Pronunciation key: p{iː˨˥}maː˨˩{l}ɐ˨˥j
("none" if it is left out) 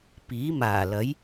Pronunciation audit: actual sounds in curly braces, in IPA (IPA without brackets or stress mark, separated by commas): iː˨˥, l